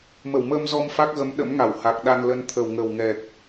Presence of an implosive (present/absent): present